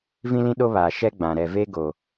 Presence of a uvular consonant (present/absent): absent